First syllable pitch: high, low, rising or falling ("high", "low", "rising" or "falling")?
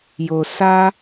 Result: low